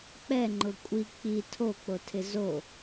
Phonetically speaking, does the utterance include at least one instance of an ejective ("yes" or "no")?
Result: yes